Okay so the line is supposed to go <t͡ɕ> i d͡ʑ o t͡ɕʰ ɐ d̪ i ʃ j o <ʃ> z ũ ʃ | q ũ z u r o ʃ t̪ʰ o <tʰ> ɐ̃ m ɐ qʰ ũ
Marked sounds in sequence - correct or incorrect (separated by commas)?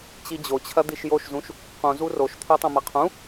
correct, correct, incorrect